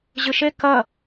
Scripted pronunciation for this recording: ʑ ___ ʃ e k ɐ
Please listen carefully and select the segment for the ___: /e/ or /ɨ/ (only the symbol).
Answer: ɨ